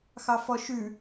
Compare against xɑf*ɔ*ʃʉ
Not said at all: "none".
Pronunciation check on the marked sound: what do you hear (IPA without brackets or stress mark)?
ɔ